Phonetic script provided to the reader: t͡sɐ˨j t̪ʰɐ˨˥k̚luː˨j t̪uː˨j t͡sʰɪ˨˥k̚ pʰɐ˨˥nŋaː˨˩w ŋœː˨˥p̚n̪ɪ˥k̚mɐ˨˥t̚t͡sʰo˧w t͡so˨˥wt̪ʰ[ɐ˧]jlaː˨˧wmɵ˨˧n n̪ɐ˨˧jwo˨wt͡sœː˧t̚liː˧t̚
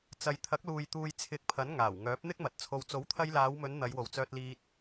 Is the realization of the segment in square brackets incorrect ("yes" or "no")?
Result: no